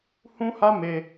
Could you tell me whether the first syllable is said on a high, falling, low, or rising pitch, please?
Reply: high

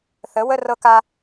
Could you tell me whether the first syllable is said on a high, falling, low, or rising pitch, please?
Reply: rising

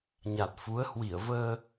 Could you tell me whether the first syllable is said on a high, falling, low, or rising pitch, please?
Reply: low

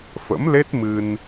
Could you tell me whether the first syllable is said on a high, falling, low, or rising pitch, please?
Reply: rising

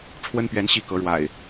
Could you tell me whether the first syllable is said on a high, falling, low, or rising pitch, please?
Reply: high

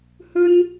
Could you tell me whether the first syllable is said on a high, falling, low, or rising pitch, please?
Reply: high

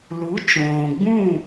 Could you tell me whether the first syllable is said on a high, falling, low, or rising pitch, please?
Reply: rising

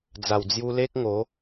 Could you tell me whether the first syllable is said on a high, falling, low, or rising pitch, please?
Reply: low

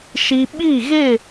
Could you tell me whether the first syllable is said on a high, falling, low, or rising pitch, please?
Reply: high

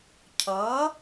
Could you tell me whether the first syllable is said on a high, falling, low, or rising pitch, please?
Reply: rising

